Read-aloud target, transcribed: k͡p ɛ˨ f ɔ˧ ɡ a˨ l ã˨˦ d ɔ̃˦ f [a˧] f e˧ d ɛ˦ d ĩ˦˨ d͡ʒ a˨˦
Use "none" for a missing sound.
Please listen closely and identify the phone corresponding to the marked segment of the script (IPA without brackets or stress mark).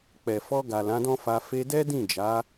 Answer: a˧